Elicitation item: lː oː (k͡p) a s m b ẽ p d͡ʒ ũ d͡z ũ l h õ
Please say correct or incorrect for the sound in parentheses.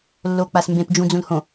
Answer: correct